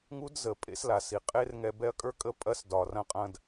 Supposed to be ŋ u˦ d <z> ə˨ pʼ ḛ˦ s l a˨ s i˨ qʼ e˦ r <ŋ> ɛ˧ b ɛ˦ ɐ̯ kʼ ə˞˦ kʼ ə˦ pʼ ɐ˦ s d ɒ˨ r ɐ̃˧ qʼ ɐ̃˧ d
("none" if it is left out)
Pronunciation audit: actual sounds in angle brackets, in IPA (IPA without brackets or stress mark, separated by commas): z, ŋ